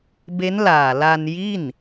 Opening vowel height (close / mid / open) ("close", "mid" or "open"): mid